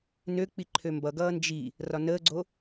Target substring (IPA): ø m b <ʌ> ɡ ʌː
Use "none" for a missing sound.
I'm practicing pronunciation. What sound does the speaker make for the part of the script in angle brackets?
ʌ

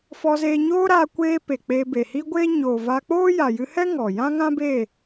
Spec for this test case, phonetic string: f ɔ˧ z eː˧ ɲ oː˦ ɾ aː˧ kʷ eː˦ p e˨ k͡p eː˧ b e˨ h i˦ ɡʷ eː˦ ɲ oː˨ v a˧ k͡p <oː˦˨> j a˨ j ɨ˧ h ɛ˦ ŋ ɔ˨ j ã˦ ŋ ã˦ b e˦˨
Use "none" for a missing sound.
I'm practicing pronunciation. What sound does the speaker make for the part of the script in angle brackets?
oː˦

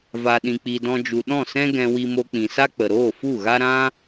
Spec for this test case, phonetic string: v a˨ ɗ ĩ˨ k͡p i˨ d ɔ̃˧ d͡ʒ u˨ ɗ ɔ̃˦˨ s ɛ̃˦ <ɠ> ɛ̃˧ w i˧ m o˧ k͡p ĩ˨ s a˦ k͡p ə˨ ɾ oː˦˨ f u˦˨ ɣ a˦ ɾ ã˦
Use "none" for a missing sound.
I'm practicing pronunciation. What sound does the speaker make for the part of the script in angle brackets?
ɡ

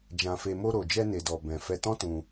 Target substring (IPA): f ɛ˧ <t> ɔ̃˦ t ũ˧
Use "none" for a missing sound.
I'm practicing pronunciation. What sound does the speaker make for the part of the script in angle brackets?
t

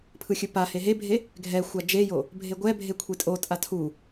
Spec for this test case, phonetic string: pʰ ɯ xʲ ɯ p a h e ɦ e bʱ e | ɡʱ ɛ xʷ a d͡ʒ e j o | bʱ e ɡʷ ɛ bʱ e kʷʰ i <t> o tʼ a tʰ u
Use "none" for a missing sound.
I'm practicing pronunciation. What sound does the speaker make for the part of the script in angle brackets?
tʼ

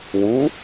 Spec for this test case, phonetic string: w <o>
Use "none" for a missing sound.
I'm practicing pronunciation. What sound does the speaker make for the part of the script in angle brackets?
u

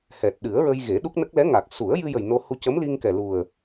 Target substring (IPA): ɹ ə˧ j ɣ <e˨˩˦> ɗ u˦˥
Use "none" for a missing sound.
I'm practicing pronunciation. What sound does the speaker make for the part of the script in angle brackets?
e˨˩˦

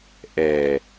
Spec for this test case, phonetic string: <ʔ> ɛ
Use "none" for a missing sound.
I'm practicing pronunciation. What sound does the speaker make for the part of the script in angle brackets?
ʔ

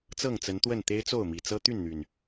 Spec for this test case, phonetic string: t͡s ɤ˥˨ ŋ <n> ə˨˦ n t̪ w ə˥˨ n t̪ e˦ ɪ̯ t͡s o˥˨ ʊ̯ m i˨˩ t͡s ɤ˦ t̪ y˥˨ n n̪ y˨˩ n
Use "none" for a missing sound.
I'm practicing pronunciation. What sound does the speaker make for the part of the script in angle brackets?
t͡s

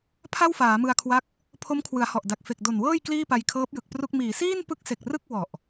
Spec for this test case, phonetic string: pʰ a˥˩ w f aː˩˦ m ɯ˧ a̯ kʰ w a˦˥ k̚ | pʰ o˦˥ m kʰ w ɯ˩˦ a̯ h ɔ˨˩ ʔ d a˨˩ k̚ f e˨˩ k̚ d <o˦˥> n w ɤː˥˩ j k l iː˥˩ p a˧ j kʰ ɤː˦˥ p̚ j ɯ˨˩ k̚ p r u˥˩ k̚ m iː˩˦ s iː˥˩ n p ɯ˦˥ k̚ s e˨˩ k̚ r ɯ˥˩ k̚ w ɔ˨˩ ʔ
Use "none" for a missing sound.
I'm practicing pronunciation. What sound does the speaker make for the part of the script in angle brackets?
o˨˩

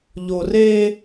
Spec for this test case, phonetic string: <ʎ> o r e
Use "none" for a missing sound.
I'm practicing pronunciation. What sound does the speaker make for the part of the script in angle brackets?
ʎ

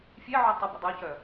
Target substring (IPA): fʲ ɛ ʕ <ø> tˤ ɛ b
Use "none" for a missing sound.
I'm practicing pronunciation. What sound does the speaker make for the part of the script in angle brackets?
ø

